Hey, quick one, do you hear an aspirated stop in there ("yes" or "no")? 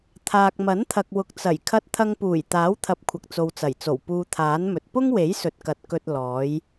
yes